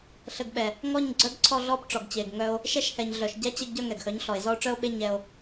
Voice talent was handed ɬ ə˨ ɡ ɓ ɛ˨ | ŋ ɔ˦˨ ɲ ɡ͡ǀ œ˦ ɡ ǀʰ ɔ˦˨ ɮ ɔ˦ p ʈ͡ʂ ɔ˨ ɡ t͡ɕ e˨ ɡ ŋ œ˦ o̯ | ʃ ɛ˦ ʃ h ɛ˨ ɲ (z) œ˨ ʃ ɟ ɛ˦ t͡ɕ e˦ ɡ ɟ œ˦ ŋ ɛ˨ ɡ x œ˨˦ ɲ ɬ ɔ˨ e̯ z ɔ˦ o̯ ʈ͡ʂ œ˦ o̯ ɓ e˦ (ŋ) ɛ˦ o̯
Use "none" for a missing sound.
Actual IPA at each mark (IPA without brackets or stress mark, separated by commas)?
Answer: ɮ, ɲ